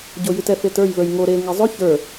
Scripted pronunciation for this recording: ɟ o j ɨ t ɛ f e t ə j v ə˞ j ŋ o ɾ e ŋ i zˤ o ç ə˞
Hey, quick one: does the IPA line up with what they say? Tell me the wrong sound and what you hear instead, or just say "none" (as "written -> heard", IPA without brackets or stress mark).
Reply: ə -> ə˞